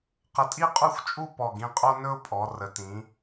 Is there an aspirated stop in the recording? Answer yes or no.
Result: no